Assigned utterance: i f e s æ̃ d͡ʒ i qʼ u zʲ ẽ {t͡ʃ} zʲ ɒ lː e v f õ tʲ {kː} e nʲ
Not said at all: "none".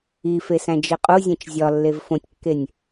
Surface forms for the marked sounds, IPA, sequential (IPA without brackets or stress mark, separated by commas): t͡ʃ, kː